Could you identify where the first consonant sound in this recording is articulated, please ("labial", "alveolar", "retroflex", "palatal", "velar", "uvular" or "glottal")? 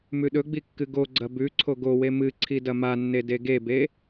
labial